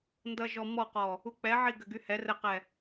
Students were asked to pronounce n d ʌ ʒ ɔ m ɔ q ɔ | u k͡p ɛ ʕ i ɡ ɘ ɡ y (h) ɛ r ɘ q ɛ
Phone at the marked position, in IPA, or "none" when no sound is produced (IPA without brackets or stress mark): h